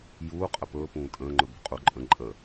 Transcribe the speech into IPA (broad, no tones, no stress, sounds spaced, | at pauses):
j uː qʼ ə p ɵː p ũː tʼ ə̃ː ŋ͡ǃ ɵ b ṳ qʼ u ǃʼ ə̃ ǃʼ ə